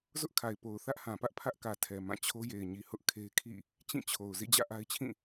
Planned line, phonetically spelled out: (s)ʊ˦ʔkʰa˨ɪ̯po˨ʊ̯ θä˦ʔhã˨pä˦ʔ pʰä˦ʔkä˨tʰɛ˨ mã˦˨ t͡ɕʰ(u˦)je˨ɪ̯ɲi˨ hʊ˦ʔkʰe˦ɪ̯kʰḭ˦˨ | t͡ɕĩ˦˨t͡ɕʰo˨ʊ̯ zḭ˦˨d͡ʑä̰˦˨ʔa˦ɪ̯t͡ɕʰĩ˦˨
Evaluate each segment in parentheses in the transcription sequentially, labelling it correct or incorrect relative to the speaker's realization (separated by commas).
incorrect, incorrect